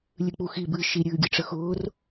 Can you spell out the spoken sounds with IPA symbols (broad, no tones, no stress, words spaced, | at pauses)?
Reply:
lʲɨk͡puxi bɨ ʃi ɾʲɨːɡʲɨʈ͡ʂəxʊːr